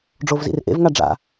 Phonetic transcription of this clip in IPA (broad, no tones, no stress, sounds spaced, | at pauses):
ɖ͡ʐ o v z ḭ r ʔ ḛ v ŋ a ɖ͡ʐ a̰